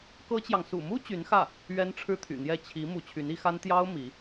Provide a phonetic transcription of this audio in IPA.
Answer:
kɤ˥t͡ɕjɑ˨ŋ sṵ˨˩mu˥ t͡ɕy˧˥nxä˥˩ | ɥɛ˥nʈ͡ʂʰɻ̩˥t̪ʰy̰˨˩n̪jɛ˥˩ t͡ɕʰi˧˥ mu˧˥t͡ɕʰy˧˥ni˧˥xa˥n t̪jɑ˥ʊ̯ mi˧˥

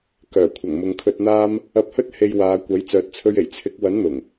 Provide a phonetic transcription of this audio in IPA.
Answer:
kœː˨˩kʷʰɐ˨˩ŋ mʊ˨ŋkʰɵ˧t̚n̪aː˥m | ɐ˧p̚hɵ˥t̚ he˧j waː˨˧kʷɐ˨˥j t͡sœː˨t̚t͡sʰɵ˧ɥe˨˩j t͡sʰɪ˨˥k̚ wɐ˨˥nn̪ʊ˨˩ŋ

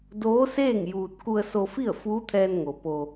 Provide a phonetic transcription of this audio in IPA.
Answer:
doː˧˥seː˥˨ŋ juː˧t̚ ku˧ə̯so˧fi˥˨ə̯ fuː˧˥t̪ʰɛː˧nŋo˩ po˧

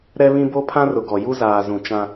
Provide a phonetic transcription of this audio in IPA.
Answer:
ɾɛ˦βĩ˦ bo˦pʰã˦rʊ˨ɡɔ˨ ju˦zaː˨zũ˨ t͡ʃã˦

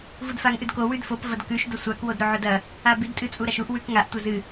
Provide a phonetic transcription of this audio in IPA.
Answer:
vudfaŋʔɨdko wʉdfop vɐdkʉʃ dosʷak wodɾoʕodɐ | abid tʼɨt͡sʼuɾaʃuʔ wʉkŋaʔ tʷɐzɨ

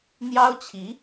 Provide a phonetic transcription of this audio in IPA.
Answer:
n̪jɑ˥ʊ̯t͡ɕʰi˧˥

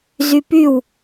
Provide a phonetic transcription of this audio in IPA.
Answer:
zypyw

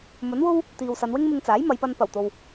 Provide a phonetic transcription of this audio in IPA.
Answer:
mɵ˨˥nwo˥w | t̪iː˨wsɐ˨˧nwɪ˥ŋmɪ˧ŋ t͡saː˨˥jmɐ˨˧jpɐ˧n pɐ˨˩wt̪o˨w

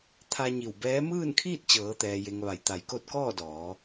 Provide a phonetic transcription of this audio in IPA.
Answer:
t̪ʰa˧ɲi˧˩w bɛː˧˥ mɯː˥˨nkʰiː˥˨t̚ t͡ɕɤː˩˧t̪ɛː˩je˩ŋ ʋa˩˧jt̪a˩˧jko˧˥t̚ kɔː˥˨dɔː˩˧

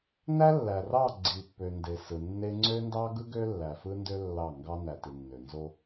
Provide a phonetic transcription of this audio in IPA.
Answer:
næ˦lːæ˨rɑ˦˨ ɡ͡ǀi˨pːø˨nde˨ sɯ˨nːe˦ ŋ͡ǀø˦ndɑ˦ɡɯ˦ ɡø˦lːæ˨fɯ˦ndø˦ lːɑ˦˨ŋɡɑ˦ næ˨ti˨nːø˨ nzo˦

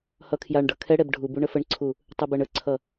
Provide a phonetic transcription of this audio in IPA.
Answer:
hʌkʰjaɳɖʌ kʰɛɽɛb ɖʱubuɳ əfəɳǀʰu | tˤɛbɜɳəǀʰʌ

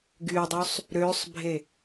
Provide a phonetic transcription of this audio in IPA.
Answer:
ɡydˤysˤ | ɾøsˤbʱe

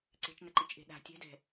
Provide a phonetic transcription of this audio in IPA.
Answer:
ǀe̤t͡ʃnəǃit͡ʃʔe̤ ɗa̤ tʲɛ̤dɛ̤

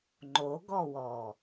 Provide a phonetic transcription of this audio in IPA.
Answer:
ŋ͡ǃoɡɔwɔ

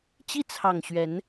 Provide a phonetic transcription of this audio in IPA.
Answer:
t͡ɕi˦t͡sʰɑ˨˩ŋ ɕɥɛ˨˦n

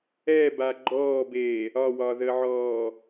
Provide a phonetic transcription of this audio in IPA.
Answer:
ɛba ɡ͡ǃɔːbeː | ɒwɒðəʕɔː

